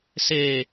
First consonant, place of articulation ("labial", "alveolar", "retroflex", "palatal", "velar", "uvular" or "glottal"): alveolar